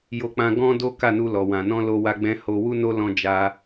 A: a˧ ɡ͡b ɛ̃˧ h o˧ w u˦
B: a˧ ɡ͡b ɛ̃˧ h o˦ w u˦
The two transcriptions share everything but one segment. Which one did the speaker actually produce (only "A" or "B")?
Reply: A